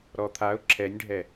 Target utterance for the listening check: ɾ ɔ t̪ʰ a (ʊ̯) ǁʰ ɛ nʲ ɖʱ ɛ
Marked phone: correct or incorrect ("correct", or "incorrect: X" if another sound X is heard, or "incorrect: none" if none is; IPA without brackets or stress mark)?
correct